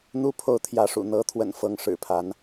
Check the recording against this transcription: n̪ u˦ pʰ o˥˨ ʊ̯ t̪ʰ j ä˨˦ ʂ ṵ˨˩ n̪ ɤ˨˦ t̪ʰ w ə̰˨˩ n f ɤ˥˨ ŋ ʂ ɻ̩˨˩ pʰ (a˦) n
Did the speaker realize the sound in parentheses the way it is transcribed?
no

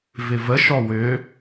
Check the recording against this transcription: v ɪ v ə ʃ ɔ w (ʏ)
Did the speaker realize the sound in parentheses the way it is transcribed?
yes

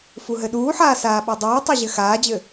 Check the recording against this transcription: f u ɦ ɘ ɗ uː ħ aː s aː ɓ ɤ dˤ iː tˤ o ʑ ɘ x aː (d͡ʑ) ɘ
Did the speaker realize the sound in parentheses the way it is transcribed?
yes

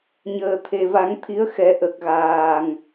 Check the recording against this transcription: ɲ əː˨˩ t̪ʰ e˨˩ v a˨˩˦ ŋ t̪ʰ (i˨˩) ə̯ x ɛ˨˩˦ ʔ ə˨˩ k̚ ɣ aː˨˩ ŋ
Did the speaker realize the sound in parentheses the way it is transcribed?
no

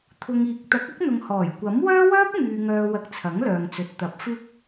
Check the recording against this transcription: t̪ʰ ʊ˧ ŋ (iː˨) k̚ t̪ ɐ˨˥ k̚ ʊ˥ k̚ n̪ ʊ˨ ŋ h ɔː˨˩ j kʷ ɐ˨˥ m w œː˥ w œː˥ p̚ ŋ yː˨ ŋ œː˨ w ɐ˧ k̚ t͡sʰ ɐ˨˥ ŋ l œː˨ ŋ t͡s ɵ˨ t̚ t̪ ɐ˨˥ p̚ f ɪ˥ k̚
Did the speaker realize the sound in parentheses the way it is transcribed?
yes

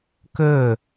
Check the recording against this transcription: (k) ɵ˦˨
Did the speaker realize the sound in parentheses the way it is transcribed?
yes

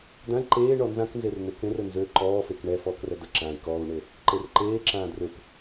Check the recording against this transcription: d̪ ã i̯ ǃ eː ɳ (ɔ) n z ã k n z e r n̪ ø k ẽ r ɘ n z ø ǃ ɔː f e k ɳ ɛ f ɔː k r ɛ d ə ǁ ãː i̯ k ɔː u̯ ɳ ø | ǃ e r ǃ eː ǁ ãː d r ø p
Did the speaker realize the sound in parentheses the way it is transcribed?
yes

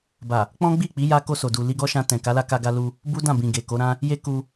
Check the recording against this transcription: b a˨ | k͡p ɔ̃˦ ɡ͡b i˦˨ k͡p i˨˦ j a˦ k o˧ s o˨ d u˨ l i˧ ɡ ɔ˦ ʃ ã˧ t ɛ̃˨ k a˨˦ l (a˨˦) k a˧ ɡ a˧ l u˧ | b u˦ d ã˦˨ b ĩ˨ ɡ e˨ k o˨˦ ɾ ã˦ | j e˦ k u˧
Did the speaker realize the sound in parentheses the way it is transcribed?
no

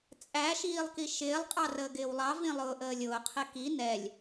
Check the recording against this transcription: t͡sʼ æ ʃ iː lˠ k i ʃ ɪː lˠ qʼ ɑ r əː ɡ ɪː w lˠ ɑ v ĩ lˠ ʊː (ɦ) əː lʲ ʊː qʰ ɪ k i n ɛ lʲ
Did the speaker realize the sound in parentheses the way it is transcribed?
no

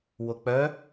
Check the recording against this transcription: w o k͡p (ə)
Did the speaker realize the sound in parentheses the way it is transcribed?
no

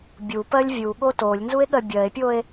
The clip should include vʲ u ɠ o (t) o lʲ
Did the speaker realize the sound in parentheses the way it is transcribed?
yes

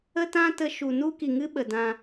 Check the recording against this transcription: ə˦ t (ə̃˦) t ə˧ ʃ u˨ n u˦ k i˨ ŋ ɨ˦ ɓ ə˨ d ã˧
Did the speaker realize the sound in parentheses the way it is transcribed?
no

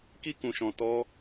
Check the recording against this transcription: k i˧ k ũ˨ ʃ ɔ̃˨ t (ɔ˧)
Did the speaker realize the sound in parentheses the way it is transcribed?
yes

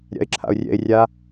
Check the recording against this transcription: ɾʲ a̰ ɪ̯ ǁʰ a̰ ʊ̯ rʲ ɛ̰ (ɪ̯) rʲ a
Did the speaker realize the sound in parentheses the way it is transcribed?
yes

